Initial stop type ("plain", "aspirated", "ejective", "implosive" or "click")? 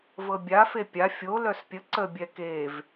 plain